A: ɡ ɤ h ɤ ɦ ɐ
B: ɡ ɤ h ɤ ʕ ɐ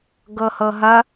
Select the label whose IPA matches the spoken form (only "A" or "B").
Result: A